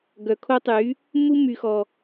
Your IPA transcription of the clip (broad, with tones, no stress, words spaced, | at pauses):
ɡœ˨ kʰo˦tˤy˨˦ | mu˦my˨xɔ˨